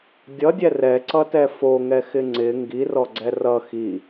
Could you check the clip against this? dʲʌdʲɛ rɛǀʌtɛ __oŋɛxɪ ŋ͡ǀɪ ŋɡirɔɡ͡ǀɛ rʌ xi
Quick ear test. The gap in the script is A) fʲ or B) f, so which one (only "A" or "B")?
B